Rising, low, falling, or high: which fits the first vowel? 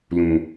low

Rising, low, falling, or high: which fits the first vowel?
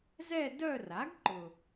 falling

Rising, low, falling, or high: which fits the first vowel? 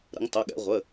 rising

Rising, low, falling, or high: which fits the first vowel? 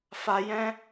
low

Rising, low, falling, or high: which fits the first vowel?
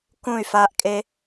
falling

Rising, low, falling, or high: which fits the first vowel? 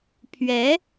rising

